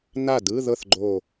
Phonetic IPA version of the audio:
na˥˩dɯ˧˥˧ðɤ˥˩θɡ͡ǃo˧˩

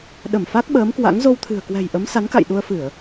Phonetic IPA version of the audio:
ɗə˧˩m fa˦˥k̚ɓəː˨˦mkwa̰˧˥ŋ zo˧wt̪ʰɨ̤˨˩ə̯kwɛ̤˨˩jʔə˨˦m sa˨˦nka̰˧˨jɗu˧ə̯fɨ˧˩˨ə̯

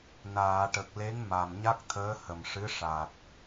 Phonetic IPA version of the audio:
naː˨˩˨ʈə˨˩k̚ le˧˥ŋ ma˨˩mɲa˦˥k̚t̪ʰəː˧˥ hə˨˩mʂɨ˧˥ ʂa˨˩t̚

